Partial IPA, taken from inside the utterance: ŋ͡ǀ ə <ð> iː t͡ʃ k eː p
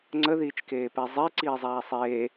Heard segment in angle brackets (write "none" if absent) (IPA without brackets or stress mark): ð